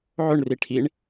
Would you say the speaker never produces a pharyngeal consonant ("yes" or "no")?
no